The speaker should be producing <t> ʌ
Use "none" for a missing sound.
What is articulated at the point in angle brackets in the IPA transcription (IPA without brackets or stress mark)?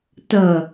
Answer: t